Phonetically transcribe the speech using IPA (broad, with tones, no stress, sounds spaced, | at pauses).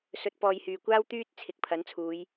s ɵ˨˥ t̚ p ɔː˨ j h yː˨˩ kʷ aː˥ w t̪ yː˧ t̚ t͡sʰ ɪ˨ k̚ pʰ ɐ˨˥ n t͡sʰ uː˨˧ j